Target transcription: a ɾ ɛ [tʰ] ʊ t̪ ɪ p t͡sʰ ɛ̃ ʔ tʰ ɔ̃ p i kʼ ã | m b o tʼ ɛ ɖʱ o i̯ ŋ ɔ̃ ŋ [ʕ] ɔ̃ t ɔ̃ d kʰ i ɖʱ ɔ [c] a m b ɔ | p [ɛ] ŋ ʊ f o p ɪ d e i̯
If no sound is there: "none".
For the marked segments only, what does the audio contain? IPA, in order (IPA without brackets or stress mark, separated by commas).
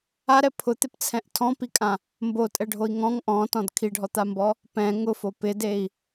pʰ, ʔ, t̪, ɛ̃